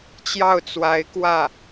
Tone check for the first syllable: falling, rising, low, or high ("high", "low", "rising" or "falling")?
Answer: falling